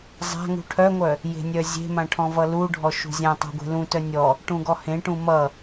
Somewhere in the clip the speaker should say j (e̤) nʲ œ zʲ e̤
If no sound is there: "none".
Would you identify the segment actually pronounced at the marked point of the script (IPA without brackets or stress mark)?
e̤